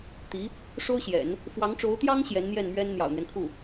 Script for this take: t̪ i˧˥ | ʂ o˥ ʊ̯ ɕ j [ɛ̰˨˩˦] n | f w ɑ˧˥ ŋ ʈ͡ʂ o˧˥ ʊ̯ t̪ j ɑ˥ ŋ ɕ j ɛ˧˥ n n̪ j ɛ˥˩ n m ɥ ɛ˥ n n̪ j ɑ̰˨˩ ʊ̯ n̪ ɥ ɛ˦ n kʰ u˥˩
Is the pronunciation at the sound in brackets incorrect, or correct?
correct